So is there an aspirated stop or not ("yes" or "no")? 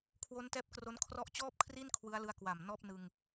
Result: yes